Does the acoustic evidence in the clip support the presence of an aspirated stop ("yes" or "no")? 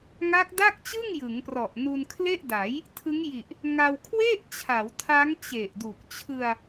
yes